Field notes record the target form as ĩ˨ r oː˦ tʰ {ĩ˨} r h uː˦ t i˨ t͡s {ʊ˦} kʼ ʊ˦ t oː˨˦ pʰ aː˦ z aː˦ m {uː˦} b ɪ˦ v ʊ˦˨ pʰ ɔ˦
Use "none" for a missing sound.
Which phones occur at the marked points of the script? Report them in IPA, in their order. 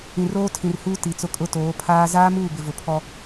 ĩ˨, ʊ˦, uː˦˨

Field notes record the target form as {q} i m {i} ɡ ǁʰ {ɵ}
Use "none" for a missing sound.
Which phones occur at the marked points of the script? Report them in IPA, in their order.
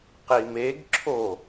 q, e, o

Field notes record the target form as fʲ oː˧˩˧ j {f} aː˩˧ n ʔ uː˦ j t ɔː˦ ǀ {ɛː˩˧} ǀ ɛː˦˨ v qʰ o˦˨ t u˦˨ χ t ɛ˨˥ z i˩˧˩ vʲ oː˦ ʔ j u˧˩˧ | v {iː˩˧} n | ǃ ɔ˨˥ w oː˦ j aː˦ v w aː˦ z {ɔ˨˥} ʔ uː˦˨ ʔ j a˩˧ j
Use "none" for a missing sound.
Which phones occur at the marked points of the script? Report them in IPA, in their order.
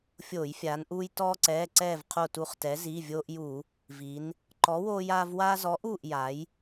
fʲ, ɛː˩˧˩, i˩˧, ɔ˨˥

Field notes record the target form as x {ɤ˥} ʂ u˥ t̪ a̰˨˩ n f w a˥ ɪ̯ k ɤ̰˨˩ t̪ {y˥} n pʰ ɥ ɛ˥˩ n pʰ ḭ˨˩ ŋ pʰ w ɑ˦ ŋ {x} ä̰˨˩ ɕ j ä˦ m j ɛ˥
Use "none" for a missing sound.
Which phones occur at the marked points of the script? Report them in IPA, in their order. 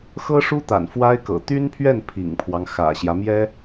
ɤ˥, y˥, x

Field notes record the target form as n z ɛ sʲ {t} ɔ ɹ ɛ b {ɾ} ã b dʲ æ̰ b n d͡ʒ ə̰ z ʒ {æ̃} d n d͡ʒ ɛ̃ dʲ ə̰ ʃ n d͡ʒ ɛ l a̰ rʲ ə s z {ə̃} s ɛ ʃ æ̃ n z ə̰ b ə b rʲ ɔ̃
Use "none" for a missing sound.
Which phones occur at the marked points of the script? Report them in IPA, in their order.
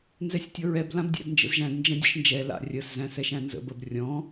tʲ, l, æ̃, æ̃

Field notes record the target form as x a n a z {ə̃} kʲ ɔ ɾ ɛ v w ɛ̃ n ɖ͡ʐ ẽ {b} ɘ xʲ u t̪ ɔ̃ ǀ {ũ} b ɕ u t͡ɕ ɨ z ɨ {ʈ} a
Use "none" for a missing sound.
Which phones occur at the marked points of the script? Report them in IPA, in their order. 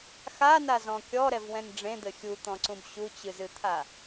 ɔ̃, d̪, ũ, t̪ʰ

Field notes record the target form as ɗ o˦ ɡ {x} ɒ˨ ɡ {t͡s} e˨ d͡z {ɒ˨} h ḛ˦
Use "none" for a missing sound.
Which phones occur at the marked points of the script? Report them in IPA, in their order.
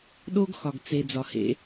x, t͡s, ɒ˨

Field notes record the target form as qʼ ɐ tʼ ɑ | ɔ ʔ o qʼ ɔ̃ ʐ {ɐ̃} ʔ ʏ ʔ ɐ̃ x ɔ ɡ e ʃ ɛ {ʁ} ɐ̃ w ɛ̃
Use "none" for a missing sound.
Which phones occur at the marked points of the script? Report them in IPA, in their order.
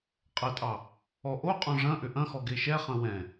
ɐ̃, χ

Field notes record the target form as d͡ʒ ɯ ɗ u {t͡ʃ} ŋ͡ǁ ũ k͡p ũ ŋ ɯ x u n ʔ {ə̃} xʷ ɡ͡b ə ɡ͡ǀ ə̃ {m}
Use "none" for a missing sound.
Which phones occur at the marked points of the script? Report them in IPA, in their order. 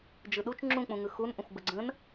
t͡ʃ, ə̃, n

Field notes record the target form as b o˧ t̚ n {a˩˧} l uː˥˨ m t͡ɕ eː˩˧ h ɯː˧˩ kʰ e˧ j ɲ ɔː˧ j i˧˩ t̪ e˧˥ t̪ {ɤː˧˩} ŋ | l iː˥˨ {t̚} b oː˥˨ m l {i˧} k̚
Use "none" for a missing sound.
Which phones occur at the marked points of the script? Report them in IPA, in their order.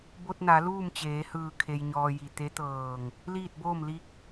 a˩˧, ɤː˧˩, t̚, i˧

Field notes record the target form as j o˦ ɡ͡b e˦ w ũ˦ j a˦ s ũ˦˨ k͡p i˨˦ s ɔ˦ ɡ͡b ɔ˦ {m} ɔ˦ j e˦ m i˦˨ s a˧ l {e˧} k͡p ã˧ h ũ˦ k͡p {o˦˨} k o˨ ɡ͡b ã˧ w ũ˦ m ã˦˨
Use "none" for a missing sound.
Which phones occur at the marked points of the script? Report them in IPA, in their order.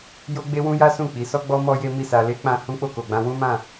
m, e˦, o˦˨

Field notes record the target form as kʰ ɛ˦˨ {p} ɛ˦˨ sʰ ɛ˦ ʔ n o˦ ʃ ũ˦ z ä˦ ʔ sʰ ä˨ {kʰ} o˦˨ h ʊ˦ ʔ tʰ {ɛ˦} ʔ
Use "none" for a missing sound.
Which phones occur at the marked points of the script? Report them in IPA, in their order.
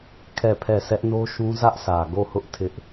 pʰ, ɡ, ɪ˦

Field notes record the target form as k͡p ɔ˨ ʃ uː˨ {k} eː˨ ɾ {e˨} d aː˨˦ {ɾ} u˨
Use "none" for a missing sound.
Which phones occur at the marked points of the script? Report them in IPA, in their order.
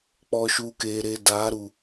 k, e˨, ɾ

